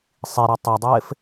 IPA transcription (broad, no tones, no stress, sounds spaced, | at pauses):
sˤ i ɾ œ tˤ œ dˤ ɪː f